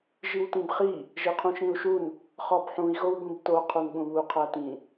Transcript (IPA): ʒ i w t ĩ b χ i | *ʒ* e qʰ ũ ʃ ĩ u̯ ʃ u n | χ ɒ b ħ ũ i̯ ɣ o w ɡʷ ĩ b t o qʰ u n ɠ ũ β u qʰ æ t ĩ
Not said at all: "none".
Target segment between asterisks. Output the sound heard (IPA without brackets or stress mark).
ʒ